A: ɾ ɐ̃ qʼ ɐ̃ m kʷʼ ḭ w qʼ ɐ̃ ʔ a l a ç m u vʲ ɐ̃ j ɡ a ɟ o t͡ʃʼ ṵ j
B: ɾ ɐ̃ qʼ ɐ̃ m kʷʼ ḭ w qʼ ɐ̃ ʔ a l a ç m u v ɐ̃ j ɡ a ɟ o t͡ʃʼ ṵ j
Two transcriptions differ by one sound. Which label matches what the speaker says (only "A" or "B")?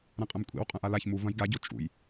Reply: B